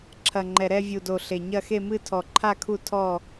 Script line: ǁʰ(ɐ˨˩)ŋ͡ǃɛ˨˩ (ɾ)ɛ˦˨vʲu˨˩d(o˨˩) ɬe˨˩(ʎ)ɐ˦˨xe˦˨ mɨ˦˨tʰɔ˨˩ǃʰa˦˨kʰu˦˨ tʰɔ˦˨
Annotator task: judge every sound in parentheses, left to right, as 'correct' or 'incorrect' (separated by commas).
correct, correct, correct, incorrect